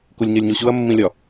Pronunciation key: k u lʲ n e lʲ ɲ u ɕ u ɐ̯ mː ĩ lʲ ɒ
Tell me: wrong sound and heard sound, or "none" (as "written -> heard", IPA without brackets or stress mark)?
n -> ɲ